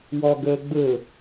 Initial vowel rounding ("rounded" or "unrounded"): rounded